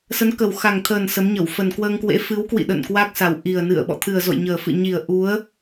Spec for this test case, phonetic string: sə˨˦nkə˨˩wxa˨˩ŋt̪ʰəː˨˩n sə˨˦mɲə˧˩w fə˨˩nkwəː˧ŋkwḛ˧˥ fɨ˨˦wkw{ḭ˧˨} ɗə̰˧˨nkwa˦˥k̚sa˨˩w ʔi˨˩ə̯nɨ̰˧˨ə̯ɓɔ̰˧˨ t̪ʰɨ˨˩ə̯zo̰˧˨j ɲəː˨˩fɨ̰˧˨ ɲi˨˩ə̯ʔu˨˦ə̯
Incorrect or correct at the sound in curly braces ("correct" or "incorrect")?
correct